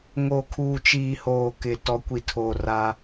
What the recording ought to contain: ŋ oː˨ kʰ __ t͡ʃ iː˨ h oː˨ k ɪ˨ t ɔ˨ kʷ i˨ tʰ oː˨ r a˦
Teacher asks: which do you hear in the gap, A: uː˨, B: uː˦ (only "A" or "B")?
A